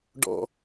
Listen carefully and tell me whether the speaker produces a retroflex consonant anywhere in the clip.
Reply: yes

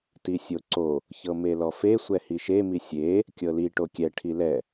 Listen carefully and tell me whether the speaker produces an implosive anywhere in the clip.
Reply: no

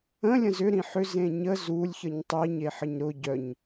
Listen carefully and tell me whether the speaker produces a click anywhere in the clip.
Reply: no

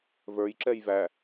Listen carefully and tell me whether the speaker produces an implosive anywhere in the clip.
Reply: no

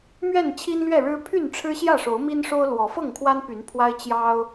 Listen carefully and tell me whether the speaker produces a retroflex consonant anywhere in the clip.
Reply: yes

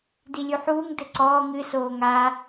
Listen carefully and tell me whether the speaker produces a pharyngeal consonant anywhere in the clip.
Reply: yes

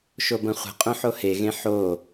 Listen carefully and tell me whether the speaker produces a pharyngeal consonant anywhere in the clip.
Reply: yes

